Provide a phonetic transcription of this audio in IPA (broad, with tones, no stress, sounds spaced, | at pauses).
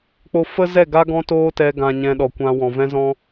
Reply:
k͡p o˧ f ə˦ z ɛ˦˨ ɡ a˦ ɡ ɔ̃˦ t oː˦ t ɛ˧ ɡ ã˨ ɲ ɛ̃˨ ɗ ɔ˨ kʷ ã˧ w ɔ̃˨ v ɛ̃˧ z ɔ̃˧